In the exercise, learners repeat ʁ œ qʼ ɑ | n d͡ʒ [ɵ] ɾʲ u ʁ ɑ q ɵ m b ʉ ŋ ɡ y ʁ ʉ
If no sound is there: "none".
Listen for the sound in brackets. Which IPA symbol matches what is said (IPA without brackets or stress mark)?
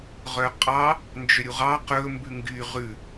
ø